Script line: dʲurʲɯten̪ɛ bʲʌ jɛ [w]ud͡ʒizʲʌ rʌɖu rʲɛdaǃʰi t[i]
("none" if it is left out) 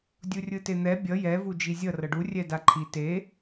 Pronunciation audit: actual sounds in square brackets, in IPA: v, e

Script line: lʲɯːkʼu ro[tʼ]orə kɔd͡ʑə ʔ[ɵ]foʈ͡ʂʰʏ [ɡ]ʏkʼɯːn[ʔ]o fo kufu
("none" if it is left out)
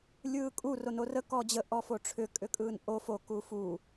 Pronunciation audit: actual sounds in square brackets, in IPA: n, ɔ, kʼ, ʔ

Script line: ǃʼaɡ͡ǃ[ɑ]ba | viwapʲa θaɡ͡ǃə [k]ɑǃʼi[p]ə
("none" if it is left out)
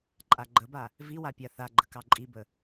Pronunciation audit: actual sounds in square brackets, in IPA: ə, k, b

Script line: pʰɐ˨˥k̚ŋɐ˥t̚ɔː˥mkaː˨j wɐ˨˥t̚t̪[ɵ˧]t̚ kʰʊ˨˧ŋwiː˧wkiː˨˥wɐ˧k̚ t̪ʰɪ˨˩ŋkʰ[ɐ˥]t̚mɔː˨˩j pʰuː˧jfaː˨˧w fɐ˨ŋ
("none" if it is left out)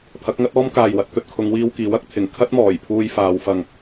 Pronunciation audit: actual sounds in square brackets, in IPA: ɵ˧, ɐ˥

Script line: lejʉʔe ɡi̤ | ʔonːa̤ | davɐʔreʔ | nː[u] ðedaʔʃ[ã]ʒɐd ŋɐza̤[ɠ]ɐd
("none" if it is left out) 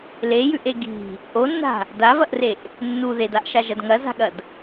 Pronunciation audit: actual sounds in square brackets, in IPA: u, a, ɠ

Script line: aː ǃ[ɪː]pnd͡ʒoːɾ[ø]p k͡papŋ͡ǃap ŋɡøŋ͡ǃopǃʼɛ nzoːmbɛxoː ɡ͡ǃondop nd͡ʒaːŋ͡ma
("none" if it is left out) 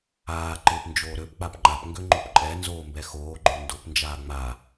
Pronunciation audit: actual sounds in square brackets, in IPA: ɪː, ø

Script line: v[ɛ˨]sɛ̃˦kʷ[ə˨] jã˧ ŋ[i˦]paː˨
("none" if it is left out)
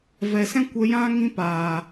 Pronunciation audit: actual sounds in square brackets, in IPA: ɛ˨, ə˧, ĩ˦

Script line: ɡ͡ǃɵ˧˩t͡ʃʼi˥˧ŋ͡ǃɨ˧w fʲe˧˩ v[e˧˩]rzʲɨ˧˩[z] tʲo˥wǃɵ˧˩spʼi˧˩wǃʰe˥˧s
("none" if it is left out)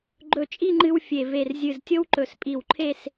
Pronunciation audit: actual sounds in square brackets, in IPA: e˧˩, z

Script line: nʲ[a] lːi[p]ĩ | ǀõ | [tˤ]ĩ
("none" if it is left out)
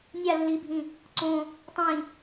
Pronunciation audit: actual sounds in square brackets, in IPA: a, bʱ, tˤ

